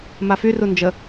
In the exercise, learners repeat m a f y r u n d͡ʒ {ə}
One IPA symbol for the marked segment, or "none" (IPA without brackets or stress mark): ə